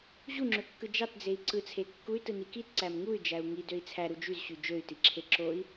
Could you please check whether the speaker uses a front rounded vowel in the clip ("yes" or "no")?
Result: yes